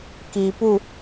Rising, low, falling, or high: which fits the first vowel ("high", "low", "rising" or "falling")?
low